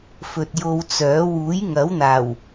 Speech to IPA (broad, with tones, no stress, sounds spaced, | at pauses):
f ɵ˨ t̚ j o˧ w t͡s œː˨˥ w uː˨˥ j ŋ ɐ˨˥ w n̪ aː˨˩ w